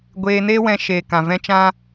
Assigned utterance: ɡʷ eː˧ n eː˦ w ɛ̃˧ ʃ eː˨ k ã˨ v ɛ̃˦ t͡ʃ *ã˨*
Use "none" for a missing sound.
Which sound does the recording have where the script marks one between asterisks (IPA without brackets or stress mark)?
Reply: ã˦